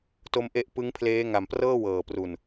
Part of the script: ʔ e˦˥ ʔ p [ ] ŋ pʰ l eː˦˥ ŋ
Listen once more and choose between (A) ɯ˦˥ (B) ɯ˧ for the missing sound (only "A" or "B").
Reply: A